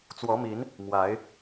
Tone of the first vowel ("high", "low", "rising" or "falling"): rising